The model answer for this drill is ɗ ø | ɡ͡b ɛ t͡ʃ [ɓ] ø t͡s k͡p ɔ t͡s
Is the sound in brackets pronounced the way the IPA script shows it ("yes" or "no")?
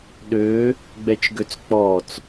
no